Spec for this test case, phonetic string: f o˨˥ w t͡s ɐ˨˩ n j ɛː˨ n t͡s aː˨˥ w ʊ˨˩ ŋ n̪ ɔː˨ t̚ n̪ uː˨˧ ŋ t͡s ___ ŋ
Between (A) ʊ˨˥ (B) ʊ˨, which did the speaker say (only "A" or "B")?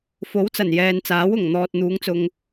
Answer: B